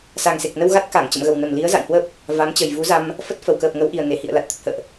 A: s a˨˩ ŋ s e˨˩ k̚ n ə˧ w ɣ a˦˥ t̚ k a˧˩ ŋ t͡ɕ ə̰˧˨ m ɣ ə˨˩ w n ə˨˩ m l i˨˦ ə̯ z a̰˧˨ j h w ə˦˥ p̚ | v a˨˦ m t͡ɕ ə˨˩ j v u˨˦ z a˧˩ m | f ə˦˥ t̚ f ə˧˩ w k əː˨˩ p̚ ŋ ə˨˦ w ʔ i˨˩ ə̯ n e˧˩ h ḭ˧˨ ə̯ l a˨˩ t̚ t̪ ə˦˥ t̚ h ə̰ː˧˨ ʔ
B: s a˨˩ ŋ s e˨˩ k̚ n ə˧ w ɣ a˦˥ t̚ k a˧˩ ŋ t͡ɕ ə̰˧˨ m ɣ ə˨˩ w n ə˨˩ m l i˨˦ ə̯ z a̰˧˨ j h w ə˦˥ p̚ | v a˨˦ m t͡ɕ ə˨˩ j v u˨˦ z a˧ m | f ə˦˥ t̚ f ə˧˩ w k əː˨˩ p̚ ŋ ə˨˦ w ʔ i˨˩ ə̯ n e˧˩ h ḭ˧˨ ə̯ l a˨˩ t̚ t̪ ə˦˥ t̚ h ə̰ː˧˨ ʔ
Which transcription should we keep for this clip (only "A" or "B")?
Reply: B